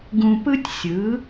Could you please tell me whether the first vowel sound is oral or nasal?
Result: nasal